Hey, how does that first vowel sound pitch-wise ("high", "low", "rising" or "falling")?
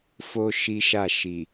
high